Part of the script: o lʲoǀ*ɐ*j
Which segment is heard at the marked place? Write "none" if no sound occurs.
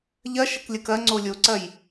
ɐ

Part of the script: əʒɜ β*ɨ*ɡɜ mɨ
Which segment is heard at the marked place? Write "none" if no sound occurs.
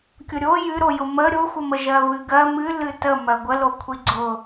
ɨ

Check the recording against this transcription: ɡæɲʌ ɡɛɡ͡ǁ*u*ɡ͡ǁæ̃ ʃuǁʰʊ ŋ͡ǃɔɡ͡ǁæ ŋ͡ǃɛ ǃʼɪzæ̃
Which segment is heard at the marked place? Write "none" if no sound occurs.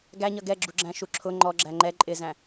u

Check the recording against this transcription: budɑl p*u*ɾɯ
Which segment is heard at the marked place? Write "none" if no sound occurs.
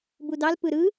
ɯ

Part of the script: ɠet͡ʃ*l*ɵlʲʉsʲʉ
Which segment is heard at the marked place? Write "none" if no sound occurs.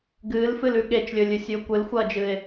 lʲ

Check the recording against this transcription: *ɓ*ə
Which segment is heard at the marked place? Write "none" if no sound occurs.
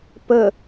p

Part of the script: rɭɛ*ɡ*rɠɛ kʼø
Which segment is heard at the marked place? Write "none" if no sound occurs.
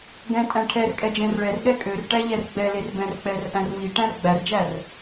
none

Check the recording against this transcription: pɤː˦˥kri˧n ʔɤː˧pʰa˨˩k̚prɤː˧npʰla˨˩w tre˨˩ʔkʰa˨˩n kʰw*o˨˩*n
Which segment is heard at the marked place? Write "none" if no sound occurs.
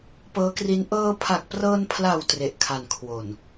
o˨˩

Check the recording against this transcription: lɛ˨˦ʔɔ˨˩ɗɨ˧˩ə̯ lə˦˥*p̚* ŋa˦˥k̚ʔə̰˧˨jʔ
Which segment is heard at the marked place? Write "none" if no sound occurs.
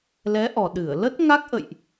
t̚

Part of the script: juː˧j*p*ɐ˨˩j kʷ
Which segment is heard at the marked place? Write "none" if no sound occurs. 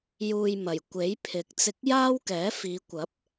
m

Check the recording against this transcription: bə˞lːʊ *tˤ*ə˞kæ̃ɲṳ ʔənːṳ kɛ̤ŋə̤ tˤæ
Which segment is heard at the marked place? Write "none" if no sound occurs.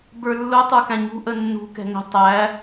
tˤ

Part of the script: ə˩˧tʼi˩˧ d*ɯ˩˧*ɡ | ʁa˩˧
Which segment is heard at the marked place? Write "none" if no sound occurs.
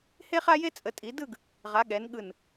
ɯ˥˧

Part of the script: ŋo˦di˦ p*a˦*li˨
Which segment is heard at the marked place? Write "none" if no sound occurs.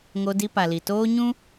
a˨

